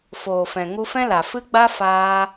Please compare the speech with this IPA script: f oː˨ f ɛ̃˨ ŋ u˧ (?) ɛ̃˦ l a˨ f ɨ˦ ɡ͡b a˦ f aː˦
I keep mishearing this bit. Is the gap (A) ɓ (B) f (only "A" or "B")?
B